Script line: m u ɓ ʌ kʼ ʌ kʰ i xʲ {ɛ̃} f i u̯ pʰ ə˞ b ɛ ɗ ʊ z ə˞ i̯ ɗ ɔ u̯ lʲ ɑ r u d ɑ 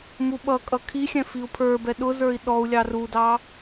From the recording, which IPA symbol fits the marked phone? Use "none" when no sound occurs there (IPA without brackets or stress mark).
ɛ̃